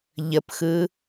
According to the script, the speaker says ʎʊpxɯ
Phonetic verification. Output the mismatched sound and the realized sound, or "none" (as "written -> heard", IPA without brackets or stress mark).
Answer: ʊ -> ə